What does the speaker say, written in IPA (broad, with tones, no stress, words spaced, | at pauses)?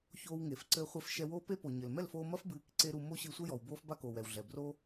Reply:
çoː˧wŋe˨f ǀɘː˧χʷe˧f ʃɛ˧woː˦pe˦po˨ ɲɘ˨l mɛ˦˨lfoː˧ mɐ˦fbɨː˨˦k ǀe˦ɾu˧ mo˦ɕɨ˧sʷɘ˦jɔ˨w boː˦fba˦koː˨w ɛ˨wɮɛ˨ bro˦